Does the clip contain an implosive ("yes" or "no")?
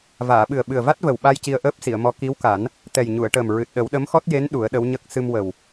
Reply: yes